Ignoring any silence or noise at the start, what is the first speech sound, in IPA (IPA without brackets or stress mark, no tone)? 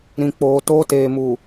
ɾ